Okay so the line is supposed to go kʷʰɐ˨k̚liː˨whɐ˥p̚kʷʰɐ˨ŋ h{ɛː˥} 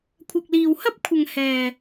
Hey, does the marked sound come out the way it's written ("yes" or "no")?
no